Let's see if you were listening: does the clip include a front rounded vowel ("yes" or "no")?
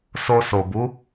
no